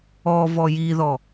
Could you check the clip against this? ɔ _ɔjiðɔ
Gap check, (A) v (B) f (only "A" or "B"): A